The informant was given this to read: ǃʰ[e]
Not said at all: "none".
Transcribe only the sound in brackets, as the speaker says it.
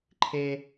e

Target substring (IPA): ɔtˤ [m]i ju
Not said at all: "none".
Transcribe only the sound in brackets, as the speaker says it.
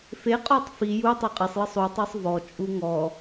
f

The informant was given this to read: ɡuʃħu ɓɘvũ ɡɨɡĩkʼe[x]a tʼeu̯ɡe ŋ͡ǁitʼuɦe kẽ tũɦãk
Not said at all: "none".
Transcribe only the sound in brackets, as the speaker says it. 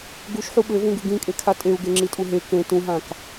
kʰ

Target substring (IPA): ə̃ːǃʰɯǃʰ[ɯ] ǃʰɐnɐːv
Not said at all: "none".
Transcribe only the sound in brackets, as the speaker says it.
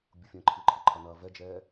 ə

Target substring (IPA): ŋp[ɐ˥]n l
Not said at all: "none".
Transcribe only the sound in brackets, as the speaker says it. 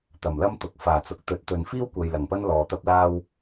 ɐ˥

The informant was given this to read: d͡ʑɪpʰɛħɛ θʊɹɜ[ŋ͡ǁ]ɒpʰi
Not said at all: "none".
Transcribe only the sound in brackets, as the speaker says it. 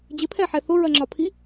ŋ͡ǁ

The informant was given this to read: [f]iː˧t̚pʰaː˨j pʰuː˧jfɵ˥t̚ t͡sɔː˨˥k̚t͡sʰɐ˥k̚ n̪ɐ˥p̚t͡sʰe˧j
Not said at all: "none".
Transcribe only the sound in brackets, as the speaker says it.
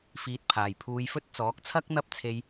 f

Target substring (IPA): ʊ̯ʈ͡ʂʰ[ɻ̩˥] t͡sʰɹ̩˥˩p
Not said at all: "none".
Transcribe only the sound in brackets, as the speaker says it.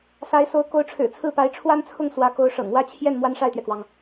ɻ̩˨˩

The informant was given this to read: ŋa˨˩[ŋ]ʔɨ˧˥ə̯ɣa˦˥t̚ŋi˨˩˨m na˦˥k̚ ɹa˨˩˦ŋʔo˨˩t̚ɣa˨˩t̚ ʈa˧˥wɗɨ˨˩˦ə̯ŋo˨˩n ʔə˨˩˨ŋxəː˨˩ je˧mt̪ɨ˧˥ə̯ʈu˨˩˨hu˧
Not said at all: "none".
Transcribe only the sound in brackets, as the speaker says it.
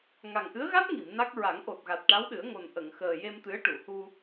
ŋ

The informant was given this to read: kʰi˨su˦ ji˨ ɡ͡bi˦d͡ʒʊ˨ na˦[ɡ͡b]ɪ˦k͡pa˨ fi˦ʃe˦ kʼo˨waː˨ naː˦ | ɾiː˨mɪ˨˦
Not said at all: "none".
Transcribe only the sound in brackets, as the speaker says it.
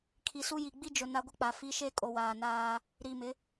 ɡʷ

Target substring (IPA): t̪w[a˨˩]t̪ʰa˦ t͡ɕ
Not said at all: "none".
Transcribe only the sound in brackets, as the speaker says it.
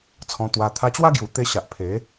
a˧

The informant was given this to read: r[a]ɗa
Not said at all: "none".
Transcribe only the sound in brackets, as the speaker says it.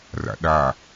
a̰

